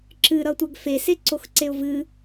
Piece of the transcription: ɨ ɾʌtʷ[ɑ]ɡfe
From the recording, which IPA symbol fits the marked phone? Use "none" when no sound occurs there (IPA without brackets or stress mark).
a